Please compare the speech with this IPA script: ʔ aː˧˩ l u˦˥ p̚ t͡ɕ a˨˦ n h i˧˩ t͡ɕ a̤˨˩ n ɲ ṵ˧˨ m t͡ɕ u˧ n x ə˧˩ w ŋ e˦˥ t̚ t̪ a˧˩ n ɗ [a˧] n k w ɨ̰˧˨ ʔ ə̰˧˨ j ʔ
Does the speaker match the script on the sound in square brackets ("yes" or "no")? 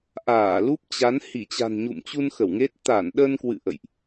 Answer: no